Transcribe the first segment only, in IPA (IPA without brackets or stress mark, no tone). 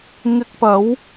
ŋ